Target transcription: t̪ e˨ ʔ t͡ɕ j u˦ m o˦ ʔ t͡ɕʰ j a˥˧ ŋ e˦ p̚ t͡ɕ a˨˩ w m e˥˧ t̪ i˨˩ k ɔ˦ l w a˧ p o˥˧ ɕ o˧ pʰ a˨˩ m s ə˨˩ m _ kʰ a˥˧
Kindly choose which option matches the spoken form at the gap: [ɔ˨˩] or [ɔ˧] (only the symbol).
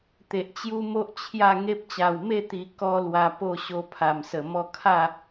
ɔ˧